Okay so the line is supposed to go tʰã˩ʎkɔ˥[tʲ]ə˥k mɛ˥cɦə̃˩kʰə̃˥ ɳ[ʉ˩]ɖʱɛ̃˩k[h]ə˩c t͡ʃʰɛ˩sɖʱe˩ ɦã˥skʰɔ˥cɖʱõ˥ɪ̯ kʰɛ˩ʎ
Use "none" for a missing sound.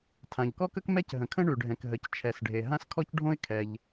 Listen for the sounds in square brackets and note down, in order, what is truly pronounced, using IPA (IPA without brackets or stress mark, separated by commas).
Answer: k, ʉ˩, ɦ